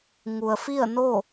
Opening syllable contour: low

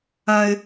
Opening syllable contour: high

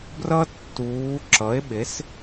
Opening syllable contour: high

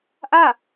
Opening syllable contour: falling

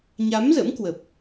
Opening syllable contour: rising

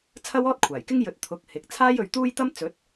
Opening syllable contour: high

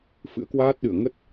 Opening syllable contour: rising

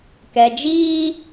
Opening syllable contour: low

